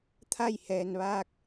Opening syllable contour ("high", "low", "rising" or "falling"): falling